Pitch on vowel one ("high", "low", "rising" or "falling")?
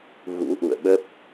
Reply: rising